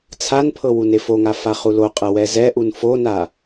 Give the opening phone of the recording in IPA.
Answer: t͡sʰ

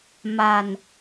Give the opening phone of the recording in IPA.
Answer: m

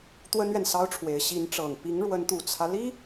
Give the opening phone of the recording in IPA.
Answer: t̪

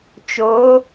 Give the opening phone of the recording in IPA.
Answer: t͡ʃ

